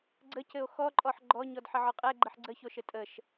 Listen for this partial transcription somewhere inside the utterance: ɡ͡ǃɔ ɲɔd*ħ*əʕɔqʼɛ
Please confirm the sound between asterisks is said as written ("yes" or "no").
yes